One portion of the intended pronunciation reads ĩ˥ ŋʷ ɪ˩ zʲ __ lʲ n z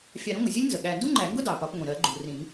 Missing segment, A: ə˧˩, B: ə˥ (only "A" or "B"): B